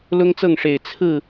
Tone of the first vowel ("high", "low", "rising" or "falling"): high